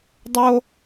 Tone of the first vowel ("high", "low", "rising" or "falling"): high